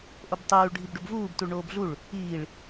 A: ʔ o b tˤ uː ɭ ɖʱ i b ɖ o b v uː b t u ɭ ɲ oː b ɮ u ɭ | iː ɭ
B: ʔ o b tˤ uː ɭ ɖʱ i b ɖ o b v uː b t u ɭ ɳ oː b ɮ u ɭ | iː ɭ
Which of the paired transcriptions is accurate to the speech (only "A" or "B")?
B